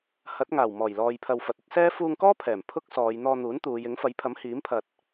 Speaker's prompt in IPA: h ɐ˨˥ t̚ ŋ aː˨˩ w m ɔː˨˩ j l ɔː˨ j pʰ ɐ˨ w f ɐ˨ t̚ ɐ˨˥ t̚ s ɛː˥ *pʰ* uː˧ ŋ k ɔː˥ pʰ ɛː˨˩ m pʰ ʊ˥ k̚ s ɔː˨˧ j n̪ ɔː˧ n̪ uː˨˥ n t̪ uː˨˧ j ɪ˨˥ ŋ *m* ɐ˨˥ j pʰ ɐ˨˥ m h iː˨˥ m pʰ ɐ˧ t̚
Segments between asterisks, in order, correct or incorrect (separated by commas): incorrect, incorrect